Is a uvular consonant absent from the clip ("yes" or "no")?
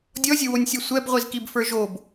no